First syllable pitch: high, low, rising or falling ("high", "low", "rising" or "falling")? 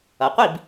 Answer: low